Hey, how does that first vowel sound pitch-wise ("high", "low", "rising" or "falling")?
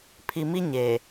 low